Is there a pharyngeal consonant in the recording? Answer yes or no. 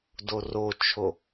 no